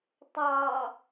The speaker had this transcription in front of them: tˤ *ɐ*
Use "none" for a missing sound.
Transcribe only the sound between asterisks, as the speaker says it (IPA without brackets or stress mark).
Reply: ɑ